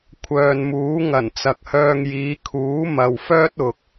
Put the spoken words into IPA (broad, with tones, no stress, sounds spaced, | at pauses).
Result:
kʷʰ œː˨ n m uː˨˥ ŋ ɐ˨˩ n t͡s ɐ˨ k̚ h œː˧ ŋ j iː˨˧ kʰ uː˨˥ m ɐ˨ w f œː˥ t̚ ʊ˨ k̚